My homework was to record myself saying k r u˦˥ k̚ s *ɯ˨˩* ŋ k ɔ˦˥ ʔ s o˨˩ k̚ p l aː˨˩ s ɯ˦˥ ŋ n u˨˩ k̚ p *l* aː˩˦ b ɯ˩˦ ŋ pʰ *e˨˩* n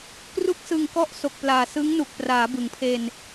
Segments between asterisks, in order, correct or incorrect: correct, incorrect, incorrect

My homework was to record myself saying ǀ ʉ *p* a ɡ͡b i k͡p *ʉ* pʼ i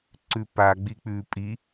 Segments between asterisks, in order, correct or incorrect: correct, correct

